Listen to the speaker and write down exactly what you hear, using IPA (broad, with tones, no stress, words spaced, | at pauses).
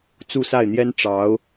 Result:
t͡su˥˧sa˥˩ɪ̯n̪jɛ˥n ʈ͡ʂɑ˧˥ʊ̯